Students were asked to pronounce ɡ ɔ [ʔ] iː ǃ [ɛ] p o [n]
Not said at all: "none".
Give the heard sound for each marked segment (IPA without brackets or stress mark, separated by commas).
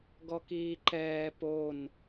k, ɛː, n